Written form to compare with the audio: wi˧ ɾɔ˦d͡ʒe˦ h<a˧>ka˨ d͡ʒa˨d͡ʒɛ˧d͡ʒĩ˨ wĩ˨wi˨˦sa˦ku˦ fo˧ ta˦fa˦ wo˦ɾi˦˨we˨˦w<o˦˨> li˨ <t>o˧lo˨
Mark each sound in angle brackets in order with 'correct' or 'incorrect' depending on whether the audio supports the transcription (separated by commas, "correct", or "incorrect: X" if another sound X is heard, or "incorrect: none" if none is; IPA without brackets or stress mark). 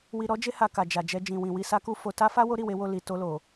correct, correct, correct